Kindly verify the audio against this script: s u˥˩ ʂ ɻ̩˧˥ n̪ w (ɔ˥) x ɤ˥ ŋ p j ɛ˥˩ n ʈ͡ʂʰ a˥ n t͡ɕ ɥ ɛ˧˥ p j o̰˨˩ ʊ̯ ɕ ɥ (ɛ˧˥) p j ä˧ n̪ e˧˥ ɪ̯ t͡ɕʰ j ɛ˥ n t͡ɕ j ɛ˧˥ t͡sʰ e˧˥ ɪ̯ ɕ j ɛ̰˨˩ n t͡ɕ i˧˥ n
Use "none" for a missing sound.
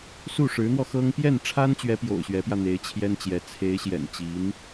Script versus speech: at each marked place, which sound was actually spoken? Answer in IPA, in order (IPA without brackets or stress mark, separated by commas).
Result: ɔ˧, ɛ˧˥